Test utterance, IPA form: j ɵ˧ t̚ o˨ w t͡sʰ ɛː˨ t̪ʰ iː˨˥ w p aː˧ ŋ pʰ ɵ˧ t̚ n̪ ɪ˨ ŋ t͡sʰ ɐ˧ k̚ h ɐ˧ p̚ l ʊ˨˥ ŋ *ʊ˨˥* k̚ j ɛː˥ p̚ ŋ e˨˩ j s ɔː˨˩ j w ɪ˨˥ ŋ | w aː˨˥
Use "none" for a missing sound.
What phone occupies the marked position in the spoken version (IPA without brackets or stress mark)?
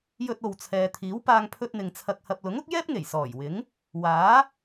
ʊ˨˥